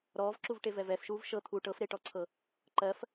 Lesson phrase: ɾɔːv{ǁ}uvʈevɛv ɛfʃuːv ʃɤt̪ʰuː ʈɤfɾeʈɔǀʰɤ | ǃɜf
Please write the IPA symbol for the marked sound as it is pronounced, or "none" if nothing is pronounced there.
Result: ǁ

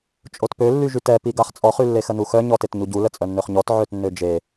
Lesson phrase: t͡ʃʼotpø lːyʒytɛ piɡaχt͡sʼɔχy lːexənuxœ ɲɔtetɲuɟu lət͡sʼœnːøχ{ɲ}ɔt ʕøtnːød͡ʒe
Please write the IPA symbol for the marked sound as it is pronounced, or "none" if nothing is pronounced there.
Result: ɲ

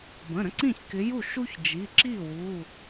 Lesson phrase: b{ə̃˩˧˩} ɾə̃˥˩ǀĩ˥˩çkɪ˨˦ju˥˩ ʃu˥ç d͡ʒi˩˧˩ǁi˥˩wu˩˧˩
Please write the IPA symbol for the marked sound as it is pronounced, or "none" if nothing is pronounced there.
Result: ə̃˩˧˩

